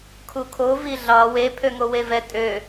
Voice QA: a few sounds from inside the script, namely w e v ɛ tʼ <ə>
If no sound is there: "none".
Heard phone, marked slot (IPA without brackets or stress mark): ø